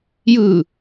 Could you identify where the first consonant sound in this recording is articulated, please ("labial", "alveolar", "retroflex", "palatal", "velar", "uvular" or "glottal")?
palatal